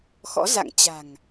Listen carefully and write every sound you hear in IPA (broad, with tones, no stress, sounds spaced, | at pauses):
x ɔ̰˧˥ z a̰˧˨ ŋ t͡ɕ a̤˨˩ ŋ